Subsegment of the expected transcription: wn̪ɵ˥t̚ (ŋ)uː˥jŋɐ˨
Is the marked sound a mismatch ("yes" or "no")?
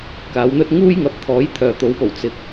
no